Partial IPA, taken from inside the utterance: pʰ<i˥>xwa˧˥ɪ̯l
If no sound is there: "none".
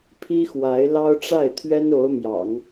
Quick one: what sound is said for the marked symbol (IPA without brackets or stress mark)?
i˥